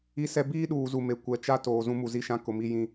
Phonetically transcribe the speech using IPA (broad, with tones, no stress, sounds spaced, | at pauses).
i˦ s ɛ˦ b iː˦ ɗ uː˨ z u˨ m e˨ kʷ ɛ˨ t͡ʃ a˦ t oː˨ z ũ˦ m u˨ z i˦ ʃ ã˦ k ʊ˨ m i˦ j ĩ˦